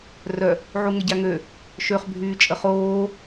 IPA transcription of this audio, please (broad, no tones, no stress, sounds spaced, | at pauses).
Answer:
r œ | ʕ u ŋ ə ɟ a ŋ ø | ʃ ø χ bʱ yː t͡ʃʼ ə χ oː